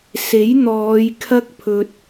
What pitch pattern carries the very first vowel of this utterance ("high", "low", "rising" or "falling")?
rising